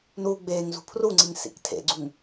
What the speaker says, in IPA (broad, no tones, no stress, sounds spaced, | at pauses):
n uː ɡ͡b eː ŋ z ṳ pʰ r u ŋ͡ǀ i ŋ s ḭ k tʰ ḛ ɡ͡ǀ u ŋ